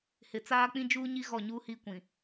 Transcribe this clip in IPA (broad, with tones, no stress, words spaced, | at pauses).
hɪ˨t͡saː˦ k͡pĩ˦d͡ʒuː˦ɲi˦ ɣɔ˦˨ɲu˦hi˦kʷĩ˨